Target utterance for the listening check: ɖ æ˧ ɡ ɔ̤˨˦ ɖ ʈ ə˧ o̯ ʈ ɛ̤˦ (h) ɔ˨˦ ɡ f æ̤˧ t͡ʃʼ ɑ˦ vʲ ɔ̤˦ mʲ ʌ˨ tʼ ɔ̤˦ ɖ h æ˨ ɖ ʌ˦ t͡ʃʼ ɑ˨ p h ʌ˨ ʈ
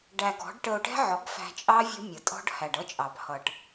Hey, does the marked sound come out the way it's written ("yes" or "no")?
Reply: no